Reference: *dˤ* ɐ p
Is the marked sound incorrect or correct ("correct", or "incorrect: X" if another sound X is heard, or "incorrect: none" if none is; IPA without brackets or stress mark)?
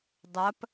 correct